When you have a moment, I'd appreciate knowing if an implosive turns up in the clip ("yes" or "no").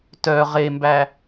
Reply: no